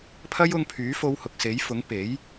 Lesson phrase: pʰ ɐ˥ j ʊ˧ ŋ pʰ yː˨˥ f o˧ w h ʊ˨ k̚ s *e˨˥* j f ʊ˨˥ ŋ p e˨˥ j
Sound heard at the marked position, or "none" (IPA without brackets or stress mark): e˨˥